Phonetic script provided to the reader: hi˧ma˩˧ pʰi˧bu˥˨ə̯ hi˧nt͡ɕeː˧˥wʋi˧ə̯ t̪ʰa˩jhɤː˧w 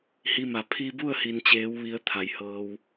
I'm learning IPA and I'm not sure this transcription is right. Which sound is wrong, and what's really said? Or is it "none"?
none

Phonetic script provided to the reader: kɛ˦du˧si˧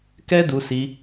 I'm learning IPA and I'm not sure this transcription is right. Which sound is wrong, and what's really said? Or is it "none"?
none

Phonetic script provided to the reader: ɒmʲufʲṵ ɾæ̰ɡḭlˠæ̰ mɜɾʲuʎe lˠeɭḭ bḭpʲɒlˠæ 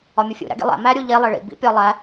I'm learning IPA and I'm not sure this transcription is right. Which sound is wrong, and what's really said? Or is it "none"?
ɜ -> æ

